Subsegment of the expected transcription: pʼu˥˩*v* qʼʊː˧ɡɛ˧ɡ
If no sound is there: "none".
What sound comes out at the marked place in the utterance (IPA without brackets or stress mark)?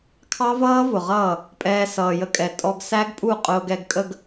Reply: none